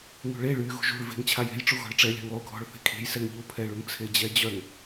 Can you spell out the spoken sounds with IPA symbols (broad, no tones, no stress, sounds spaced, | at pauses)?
ŋ ṳ ɭ e ɭ y ɣ ṳ ʒ ṳ ɭ v e̤ ŋ t͡ɕʰ a j e̤ j ʈ͡ʂ u ɣ ɔ̤ ɭ ʈ͡ʂ ɛ lʲ a̤ ŋ lˠ u ɡʱ ɔ̤ ɭ θ e̤ kʰ e̤ j s ɛ ŋ ʎ u pʰ ɛ ɭ u ŋ t͡sʰ e d͡ʑ ɛ d͡ʑ œ ŋ